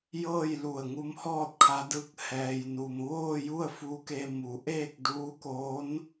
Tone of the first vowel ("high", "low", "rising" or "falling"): falling